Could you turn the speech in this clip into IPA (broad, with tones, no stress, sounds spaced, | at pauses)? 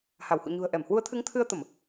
h a˧˩ w h ṵ˧˨ ɲ ṳ˨˩ ə̯ ʔ ɛ˧˩ m h w u˨˦ ə̯ t̪ʰ ɨ˨˦ ŋ t̪ʰ ɨ˧ ə̯ t̪ ə˧˩˨ m